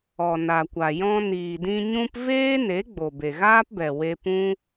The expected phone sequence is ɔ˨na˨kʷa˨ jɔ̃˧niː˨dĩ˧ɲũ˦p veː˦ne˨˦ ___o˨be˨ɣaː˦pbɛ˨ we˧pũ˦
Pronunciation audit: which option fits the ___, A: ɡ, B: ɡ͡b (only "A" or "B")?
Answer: B